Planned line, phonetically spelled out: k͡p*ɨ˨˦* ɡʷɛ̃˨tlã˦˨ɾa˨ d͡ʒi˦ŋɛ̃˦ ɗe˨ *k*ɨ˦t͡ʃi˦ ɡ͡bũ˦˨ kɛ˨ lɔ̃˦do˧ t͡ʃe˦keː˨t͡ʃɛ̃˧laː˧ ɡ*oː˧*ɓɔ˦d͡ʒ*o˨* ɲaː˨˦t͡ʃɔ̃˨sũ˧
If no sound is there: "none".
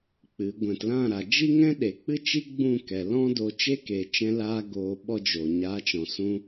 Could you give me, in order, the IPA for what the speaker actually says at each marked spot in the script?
ɨ˨˦, k͡p, oː˧, o˨

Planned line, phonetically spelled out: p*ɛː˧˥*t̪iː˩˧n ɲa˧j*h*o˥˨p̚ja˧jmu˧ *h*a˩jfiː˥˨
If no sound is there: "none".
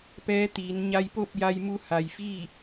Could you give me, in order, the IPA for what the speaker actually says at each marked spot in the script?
ɛː˧˥, p, h

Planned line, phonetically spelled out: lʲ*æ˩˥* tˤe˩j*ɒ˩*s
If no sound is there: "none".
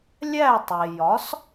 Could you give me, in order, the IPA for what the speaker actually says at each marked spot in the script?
æ˥˩, ɒ˩˥

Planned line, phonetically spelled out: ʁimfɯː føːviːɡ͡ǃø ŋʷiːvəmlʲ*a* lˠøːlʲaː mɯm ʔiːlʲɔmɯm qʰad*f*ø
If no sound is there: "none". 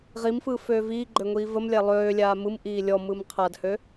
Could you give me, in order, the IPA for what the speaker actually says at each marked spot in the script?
æ, h

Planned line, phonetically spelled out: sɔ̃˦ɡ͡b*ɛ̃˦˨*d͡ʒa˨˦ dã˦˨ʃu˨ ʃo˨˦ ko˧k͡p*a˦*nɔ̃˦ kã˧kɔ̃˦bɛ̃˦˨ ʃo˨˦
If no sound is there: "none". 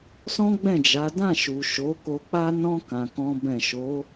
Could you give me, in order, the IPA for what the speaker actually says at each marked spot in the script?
ɛ̃˦˨, a˦

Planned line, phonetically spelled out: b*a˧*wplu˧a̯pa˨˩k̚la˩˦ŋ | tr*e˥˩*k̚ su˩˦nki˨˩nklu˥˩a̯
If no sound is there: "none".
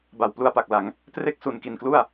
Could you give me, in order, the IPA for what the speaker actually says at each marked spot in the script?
a˨˩, e˥˩

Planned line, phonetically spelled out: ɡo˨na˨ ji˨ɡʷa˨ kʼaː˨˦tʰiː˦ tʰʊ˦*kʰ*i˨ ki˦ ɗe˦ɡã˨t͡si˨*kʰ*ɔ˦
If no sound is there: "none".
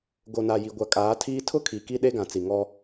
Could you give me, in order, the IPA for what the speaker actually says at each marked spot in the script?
kʰ, ŋ

